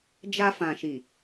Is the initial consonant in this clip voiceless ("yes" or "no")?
no